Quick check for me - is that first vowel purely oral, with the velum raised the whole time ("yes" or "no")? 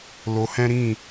yes